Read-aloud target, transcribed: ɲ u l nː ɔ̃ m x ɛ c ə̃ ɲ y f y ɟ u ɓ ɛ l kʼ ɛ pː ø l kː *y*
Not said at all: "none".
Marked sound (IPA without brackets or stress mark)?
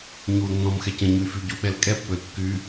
y